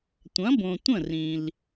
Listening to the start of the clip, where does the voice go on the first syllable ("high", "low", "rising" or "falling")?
rising